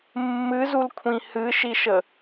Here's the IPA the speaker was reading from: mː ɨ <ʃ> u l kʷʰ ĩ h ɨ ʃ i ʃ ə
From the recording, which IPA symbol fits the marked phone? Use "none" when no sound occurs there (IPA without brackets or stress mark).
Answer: z